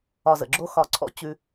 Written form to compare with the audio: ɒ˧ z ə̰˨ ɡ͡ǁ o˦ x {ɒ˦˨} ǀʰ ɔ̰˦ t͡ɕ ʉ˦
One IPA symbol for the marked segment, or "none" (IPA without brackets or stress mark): ɒ˧